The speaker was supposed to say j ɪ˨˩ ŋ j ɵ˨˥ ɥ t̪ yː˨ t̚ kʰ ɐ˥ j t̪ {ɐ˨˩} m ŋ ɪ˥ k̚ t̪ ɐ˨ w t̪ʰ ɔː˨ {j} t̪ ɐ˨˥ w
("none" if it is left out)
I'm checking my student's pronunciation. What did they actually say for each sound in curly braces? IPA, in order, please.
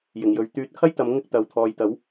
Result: ɐ˨˧, j

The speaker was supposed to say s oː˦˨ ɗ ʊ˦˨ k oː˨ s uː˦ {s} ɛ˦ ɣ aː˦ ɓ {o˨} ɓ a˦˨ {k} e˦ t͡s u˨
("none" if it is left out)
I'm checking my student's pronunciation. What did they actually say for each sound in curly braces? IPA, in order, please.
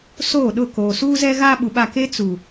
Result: z, u˨, k

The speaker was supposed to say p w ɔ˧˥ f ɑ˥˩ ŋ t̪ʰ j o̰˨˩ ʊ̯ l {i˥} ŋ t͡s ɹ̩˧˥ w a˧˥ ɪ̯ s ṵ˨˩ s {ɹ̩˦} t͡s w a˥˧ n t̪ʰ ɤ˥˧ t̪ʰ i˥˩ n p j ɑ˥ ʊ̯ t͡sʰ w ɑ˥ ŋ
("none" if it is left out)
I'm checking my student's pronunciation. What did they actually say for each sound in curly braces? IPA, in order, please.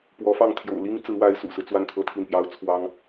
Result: i˥, ɹ̩˦

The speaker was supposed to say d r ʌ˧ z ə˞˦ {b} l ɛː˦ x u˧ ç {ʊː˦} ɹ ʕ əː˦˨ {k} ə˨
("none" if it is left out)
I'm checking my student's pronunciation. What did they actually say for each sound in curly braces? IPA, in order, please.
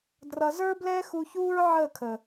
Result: b, uː˦, kʰ

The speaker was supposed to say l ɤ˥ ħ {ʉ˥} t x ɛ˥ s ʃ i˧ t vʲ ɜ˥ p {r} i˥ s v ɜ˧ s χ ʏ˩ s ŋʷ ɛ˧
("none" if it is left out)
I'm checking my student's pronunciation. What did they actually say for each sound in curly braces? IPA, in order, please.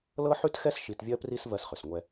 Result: ʉ˥, r

